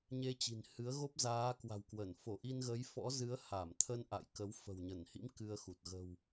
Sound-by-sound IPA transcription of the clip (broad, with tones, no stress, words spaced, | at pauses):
ɲe˧t͡ɕi̤˨˩nhɨ˨˦ə̯ɣo˦˥p̚ zaː˨˦kwa̤˨˩wkwə˧˩n fo˧˩ ʔi˧nɣə˨˦jfɔ̰˧˥zɨ˨˦ə̯ ha˧˩mt̪ʰə˧n ʔa̰˧˨jkə˨˦w fə̤˨˩wɲə˧˩nhḭ˧˥m kɨ˧ə̯xu˨˩t̚ ɣə̤˨˩w